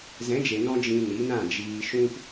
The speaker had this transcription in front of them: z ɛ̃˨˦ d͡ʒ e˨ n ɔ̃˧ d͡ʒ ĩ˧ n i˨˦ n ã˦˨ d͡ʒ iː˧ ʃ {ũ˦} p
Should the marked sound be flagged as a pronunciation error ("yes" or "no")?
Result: no